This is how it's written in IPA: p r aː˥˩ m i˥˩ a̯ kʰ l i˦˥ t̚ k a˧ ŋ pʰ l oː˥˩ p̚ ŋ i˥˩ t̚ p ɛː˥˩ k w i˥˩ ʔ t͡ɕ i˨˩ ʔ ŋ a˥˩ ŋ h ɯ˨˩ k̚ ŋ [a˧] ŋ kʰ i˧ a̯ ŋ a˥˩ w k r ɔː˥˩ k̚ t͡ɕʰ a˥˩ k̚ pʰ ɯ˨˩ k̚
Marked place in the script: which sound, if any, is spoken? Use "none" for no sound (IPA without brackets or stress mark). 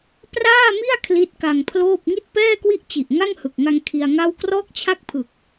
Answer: a˧